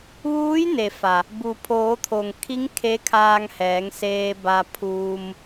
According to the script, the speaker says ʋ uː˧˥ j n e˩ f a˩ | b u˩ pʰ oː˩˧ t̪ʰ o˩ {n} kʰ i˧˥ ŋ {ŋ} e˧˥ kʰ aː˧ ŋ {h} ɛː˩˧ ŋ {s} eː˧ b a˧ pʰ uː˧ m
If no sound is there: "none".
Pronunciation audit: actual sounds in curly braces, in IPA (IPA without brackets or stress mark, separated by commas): ŋ, kʰ, h, s